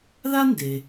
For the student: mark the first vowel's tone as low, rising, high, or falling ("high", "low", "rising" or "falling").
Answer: high